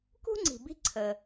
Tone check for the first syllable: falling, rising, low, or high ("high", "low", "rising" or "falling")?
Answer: high